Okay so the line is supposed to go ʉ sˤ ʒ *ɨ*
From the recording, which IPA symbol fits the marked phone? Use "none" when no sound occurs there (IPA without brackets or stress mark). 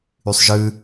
ɨ